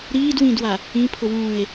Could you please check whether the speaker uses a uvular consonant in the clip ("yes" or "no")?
no